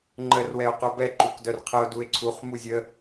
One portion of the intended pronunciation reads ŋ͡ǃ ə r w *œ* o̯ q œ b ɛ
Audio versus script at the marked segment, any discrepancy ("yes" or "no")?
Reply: yes